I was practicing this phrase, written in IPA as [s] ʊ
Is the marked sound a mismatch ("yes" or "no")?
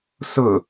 no